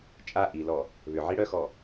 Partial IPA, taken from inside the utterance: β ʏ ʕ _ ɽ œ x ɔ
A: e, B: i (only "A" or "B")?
B